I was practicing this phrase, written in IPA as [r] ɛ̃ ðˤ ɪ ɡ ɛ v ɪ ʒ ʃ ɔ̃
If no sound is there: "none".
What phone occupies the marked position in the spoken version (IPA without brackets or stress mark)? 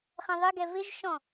χ